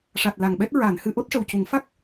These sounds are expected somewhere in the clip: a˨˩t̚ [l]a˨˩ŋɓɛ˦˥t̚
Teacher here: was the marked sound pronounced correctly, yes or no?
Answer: yes